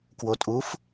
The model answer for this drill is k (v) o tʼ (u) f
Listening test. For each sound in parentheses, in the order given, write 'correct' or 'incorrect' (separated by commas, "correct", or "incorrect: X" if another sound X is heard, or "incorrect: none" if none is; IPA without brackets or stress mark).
incorrect: w, correct